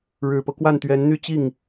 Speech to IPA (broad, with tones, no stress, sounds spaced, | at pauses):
ɻ ɻ̩˨˩ p ɤ˦ k w a˥˩ n t̪ ɥ ɛ˧˥ n n̪ y˥˧ t͡ɕ i˥˩ ŋ